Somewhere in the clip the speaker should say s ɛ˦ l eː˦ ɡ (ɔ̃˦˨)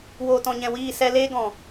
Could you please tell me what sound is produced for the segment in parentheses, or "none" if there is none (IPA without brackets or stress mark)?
ɔ̃˨